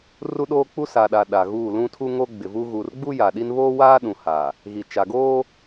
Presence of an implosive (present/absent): present